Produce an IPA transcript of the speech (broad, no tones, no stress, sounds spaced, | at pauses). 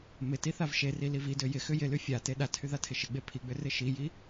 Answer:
m ɪ t i θ a v ʃ e r i l i v i d ø j ɪ x ʏ j ɪ l y fʲ a t e ɗ a tʰ y ð a tʰ ɪ ʃ ɪ ɡ͡b e pʰ i ɡ͡b ʏ r ɪ ʃ i j i